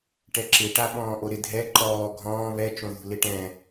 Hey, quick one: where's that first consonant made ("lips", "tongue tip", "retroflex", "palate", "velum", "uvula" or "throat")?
retroflex